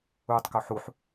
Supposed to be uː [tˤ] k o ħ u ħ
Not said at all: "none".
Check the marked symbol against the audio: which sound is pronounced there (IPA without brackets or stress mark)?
tˤ